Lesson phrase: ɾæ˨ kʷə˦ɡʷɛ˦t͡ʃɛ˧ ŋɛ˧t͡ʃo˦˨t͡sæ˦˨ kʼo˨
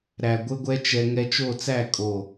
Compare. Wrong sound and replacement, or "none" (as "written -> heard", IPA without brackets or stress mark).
kʷ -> ɡʷ